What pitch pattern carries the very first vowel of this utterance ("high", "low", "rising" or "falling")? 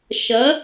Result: rising